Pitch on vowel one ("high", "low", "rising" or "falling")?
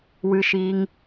high